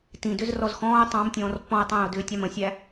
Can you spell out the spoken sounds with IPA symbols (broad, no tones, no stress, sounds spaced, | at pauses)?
t ĩ d ʏ z r ɔ z x ɔ̃ː ʊ̯ tˤ ɑ̃ m tʲ ɔ̃ː r pː ɔ̃ ʊ̯ tˤ æ̃ː ʊ̯ d ʏː tʲ ɑ m ə̃ sʲ æ